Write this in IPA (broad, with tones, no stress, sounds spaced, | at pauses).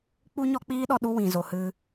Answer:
k͡p u˦ ɲ ɔ˦ k͡p iː˦ ɗ ɔ˧ ɗ u˦ w ĩ˨ z o˨ h ɨ˧